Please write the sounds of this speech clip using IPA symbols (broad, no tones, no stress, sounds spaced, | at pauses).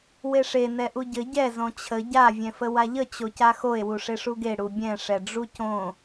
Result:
w e ʂ e n ɛ ʔ u ɟ ɘ ɟ ɛ z õ t͡ɕʰ ə ɟ a vʲ ɛ̃ f ə w a ʎ ə t͡ɕ o c a x o e̯ w u ʂ e ʂ u ɡ e ɽ u bʲ ɛ̃ ʂ ɛ ɖ͡ʐ u c õ